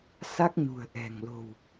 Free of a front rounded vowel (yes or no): yes